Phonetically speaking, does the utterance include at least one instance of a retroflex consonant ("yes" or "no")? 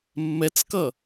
no